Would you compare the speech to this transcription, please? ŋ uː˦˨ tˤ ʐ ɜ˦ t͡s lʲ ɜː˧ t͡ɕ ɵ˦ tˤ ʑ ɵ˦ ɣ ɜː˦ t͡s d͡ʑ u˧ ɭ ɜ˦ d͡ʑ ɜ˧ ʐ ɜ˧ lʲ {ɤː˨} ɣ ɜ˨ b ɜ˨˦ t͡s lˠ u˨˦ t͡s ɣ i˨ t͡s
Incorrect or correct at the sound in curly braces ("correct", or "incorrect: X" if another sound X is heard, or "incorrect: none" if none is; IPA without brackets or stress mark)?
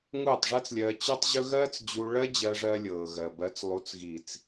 correct